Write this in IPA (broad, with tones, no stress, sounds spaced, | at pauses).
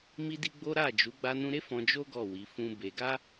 m i˦ d i˦ ɡ͡b o˦ ɾ a˦˨ d͡ʒ u˨˦ ɡ͡b a˧ n ũ˧ ɾ e˦ f ɔ̃˧ d͡ʒ o˦ ɡ ɔ˦˨ w i˨˦ f ũ˦ b e˧ ɡ a˦